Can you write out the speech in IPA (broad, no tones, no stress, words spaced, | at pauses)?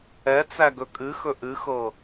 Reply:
ɛt͡sæ ɡɵkʼɨxɵ ʔɨxɤ